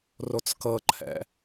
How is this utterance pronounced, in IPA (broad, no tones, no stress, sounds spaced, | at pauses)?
r o t͡s k ɤ ǃʰ ɛ̰